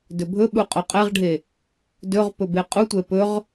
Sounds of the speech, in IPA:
dɵbʱɵɓu qʼoqʼɛʁɖʱe | dɵʁpɵ beqʼutʷɛ pɵʁ

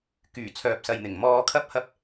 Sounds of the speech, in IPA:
kyː˨˩ t͡sʰœː˨p̚sɐ˨jn̪ɪ˨˩ŋ mɔː˧kʰɐ˥p̚hɐ˥p̚

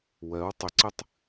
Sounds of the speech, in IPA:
wɜw tˤʏǀɨtˤ

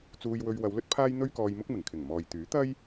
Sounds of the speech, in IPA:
t͡suː˧jwɵ˧ɥwɐ˨˧wlɵ˥t̚ pʰaː˥jn̪ɵ˥ɥkɔː˧jmʊ˥k̚ mɪ˨˩ŋkʰɪ˨˩ŋmɔː˨j t̪yː˨˥ t̪ɐ˥j

